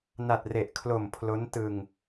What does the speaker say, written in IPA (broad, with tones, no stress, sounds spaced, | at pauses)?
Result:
n a˨˩ t̚ r e˨˩ ʔ kʰ l o˨˩ m pʰ l o˦˥ n t ɯ˧ ŋ